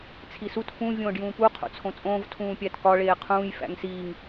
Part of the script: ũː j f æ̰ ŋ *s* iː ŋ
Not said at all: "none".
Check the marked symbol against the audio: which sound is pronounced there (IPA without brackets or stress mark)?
s